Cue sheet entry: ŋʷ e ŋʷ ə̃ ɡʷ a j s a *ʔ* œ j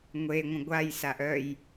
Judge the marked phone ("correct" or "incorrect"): correct